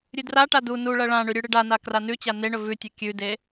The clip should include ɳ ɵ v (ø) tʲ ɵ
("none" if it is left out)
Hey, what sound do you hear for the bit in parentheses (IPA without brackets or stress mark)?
ʉ